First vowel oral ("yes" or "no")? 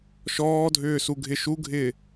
yes